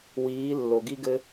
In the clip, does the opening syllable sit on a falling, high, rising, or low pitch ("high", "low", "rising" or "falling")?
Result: rising